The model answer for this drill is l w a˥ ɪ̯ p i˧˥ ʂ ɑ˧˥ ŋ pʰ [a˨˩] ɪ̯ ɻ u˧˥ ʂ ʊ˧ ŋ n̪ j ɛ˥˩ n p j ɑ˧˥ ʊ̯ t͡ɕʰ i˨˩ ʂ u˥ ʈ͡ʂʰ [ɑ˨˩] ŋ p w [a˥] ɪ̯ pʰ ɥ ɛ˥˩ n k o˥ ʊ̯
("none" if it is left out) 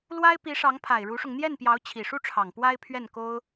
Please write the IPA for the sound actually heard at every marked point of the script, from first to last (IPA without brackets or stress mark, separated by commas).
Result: a˨˩, ɑ˨˩, a˥